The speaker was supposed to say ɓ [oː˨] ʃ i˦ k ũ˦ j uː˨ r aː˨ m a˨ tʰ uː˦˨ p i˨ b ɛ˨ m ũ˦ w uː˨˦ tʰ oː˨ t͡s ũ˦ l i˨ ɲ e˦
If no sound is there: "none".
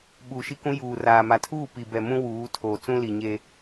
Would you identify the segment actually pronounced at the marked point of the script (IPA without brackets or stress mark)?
uː˨